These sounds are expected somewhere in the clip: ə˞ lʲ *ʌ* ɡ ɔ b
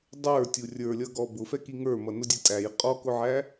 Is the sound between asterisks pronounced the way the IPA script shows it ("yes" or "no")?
yes